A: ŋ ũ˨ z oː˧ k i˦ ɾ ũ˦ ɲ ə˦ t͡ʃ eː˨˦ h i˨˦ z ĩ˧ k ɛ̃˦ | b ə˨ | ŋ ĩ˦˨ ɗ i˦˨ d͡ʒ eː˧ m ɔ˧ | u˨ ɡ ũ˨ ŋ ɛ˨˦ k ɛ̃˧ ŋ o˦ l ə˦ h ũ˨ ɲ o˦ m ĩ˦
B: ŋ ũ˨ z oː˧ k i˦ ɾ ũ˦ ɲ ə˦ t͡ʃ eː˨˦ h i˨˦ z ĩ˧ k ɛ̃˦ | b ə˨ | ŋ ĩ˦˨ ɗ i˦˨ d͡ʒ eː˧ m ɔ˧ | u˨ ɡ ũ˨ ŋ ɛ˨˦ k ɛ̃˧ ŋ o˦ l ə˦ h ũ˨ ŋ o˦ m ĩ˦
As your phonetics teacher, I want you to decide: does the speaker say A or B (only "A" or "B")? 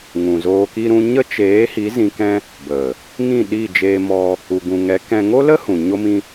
A